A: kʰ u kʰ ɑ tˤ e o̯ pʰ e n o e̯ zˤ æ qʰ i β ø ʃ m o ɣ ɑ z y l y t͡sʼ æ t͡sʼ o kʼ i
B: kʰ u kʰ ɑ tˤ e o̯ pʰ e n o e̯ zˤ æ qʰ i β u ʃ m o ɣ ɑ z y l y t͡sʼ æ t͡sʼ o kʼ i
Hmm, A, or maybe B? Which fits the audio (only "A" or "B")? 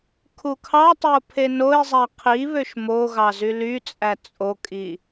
A